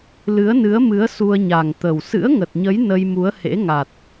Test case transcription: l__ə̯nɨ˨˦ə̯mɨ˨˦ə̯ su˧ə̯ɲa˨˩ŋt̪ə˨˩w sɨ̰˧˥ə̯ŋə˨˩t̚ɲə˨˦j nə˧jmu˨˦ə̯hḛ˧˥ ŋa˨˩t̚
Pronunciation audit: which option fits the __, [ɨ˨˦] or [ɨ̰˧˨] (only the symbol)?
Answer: ɨ˨˦